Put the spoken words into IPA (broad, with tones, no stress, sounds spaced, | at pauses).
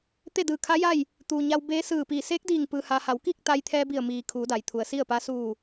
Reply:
t̪ e˥˨ d ɯː˧˩ kʰ a˧˥ j a˥˨ j | t̪ uː˩ ɲ a˧ w b eː˧˥ s ɯː˧˩ p iː˧˩ s eː˧˥ k̚ d iː˧˩ ŋ p ɯː˧ h a˧ h a˩˧ w k iː˥˨ k̚ t̪ a˧ j t̪ʰ ɛː˧ b i˧˩ ə̯ m iː˩ kʰ uː˩˧ d a˩ j t̪ʰ u˩ ə̯ s i˥˨ ə̯ p a˧˥ s uː˧˩